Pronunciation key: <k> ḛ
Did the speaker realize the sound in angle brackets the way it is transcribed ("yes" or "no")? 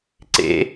no